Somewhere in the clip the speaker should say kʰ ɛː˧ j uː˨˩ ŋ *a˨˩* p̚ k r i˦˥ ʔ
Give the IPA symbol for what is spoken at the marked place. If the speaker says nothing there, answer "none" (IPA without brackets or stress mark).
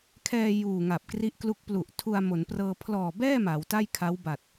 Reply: a˨˩